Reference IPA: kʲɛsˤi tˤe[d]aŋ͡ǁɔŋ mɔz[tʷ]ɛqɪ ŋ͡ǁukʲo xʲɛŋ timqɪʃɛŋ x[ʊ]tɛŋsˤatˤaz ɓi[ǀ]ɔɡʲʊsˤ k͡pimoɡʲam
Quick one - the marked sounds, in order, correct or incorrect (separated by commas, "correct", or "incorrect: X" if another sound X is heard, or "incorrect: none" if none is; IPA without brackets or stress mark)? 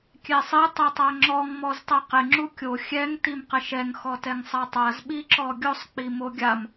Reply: incorrect: tˤ, incorrect: tˤ, incorrect: ɔ, incorrect: ǁ